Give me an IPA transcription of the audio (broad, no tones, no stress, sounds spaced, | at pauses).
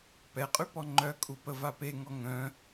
p ɛ qʼ y p ɔ ŋ͡ǃ œ kʼ u p ə v a p e ŋ ɔ ŋ œ̃